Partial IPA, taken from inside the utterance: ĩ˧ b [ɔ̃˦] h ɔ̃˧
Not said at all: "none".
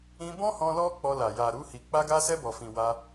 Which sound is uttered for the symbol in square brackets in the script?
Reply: ɔ̃˦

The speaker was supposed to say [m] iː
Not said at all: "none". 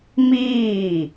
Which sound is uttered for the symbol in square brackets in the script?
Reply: m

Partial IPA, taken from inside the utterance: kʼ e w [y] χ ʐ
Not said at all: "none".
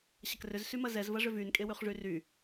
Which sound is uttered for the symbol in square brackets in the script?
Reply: y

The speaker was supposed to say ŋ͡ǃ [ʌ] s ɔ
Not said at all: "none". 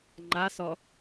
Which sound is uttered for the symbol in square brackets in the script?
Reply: a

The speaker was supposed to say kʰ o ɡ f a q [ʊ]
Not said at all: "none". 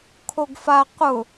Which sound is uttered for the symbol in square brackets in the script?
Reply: ʊ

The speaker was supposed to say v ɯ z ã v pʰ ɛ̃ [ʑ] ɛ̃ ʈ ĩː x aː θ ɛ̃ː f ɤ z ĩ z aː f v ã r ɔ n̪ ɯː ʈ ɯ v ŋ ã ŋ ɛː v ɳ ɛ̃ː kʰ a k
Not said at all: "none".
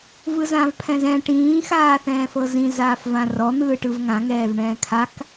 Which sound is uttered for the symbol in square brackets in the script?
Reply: z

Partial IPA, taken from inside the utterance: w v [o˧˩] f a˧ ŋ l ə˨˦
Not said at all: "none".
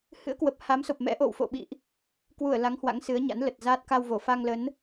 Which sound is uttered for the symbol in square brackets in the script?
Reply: o˧˩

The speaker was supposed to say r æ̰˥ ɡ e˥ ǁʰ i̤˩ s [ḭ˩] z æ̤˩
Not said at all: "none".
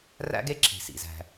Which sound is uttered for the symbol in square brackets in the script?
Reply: ḭ˩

